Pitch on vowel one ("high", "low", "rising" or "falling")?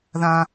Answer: low